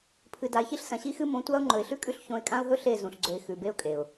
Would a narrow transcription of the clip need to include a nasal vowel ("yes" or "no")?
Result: yes